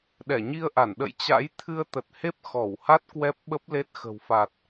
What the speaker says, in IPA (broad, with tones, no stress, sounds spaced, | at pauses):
ɗ ɛ˧˩ ɲ i˧ ə̯ ʔ a˧˩ n ɗ ə̰˧˨ j t͡ɕ a̰˧˥ j t̪ʰ ɨ˧ ə̯ t̪ ə˨˩ t̚ h e˦˥ p̚ x ɔ˧˩ w h a˦˥ t̚ k w ɛ˦˥ p̚ ɓ ə˦˥ p̚ l e˦˥ t̚ x ə̤˨˩ w f a˨˩ t̚